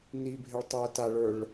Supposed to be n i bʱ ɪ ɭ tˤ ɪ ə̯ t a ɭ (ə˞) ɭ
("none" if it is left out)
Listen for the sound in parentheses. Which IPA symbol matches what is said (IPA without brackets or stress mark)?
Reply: ə˞